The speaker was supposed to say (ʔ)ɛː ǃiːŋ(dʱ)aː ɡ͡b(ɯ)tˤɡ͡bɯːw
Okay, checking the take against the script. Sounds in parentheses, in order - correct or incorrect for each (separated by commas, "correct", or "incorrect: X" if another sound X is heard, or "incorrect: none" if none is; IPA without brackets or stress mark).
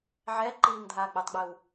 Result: incorrect: ʕ, correct, correct